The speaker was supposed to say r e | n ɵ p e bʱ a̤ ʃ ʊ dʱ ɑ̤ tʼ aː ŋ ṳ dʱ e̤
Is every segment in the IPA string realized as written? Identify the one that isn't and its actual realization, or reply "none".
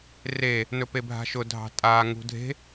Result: none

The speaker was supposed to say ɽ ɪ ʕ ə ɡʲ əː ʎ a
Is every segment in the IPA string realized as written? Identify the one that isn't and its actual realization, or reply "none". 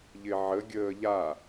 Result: ɽ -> ʎ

